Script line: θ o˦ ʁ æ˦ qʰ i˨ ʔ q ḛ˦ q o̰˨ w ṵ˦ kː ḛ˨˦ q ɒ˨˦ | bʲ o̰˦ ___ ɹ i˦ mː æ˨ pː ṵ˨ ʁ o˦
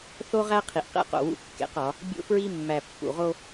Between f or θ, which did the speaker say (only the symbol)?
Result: f